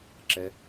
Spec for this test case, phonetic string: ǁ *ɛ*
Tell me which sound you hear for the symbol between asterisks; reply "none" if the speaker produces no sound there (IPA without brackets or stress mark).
ɛ